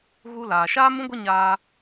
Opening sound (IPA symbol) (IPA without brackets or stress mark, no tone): ɣ